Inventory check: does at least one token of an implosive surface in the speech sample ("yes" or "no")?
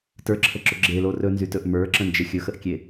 no